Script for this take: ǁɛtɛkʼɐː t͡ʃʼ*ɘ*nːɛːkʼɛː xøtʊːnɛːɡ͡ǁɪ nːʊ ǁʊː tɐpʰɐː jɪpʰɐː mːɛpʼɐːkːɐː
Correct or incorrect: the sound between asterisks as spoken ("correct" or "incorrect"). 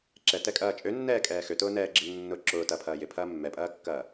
incorrect